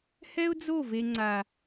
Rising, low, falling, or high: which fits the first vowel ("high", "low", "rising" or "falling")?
high